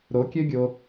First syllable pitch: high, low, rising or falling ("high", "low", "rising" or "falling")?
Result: rising